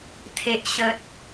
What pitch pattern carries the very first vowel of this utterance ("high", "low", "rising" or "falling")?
low